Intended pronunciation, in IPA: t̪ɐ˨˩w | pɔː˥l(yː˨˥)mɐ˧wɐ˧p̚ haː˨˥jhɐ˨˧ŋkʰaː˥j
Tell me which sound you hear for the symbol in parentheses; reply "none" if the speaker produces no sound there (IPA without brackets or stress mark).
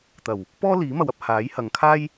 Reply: iː˨˥